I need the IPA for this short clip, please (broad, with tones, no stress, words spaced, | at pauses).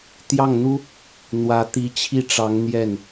t̪jɑ˥˩ŋn̪u˥ | n̪wä˧˥ t̪i˧˥t͡ɕʰi˥˩ʈ͡ʂɑ˧˥ŋ n̪jɛ˥˩n